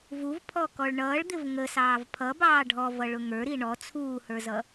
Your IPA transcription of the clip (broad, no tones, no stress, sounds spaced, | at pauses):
v u v pʰ ɔ k ɔ ɭ ɳ ʌː ɭ d̪ ɪ v ŋ ə s ɑː v pʰ ʌ b ɑː ɖʱ ɔ v ʌ ɭ ʊ ŋ ə˞ ɾ i ɳ ɔ t͡sʰ uː h ə˞ z ʌ